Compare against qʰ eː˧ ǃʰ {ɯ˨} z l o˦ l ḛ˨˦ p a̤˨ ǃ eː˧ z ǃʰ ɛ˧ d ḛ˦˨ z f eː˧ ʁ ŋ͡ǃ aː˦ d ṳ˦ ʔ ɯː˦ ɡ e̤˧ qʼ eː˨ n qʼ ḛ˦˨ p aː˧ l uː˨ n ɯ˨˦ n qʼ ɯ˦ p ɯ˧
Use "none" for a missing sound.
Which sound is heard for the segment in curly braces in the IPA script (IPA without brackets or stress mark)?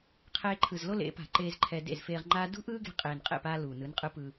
ɯ˨